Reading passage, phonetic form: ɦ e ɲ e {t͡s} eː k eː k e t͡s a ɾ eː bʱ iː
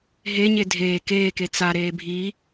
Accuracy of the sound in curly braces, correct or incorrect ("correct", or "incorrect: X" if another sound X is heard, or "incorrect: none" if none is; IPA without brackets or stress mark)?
incorrect: dʱ